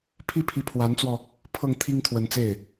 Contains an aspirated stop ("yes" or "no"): yes